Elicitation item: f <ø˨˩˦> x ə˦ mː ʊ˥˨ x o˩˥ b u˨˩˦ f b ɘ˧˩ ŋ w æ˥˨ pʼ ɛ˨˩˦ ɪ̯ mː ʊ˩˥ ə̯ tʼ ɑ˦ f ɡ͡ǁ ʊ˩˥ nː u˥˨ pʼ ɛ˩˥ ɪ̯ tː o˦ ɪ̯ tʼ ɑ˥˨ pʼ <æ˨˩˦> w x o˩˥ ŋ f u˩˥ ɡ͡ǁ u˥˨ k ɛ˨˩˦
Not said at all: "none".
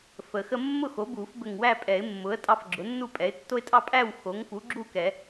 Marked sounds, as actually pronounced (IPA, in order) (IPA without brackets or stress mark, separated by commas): ə˨˩˦, æ˥˨